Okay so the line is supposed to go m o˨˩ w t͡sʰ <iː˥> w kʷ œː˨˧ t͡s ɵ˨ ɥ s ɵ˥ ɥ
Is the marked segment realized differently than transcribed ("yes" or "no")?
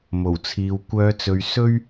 yes